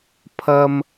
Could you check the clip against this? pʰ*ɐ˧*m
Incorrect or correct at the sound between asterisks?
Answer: correct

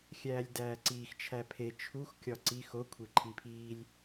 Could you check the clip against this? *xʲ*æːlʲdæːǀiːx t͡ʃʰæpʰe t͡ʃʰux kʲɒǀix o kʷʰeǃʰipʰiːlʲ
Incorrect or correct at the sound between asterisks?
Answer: correct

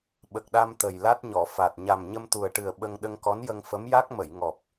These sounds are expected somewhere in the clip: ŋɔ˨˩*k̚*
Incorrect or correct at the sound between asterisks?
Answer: incorrect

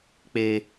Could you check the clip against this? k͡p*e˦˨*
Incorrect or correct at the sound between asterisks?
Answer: incorrect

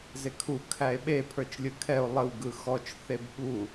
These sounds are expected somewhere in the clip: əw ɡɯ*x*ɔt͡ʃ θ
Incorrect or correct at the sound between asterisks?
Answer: correct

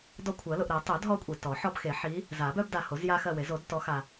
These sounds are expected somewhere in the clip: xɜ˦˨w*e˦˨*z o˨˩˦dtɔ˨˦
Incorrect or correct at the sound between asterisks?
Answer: incorrect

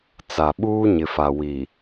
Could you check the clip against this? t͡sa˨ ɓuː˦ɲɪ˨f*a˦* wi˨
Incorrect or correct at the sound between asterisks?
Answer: incorrect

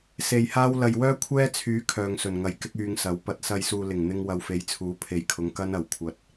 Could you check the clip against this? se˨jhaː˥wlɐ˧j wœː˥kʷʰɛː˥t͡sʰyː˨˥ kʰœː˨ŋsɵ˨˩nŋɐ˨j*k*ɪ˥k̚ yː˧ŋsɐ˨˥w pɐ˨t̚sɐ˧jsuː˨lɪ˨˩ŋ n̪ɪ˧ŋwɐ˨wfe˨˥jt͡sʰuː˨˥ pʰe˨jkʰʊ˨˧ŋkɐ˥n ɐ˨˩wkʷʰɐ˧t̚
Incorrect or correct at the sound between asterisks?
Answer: correct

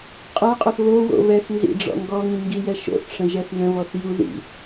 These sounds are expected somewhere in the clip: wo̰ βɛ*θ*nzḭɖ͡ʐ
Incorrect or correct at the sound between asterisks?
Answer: correct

